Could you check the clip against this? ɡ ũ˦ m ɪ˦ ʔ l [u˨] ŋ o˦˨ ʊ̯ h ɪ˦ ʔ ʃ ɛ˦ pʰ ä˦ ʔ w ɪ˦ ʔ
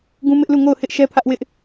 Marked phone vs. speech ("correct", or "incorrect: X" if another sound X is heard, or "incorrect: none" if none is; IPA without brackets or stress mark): incorrect: u˦˨